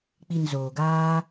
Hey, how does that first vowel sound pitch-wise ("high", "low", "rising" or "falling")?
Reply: low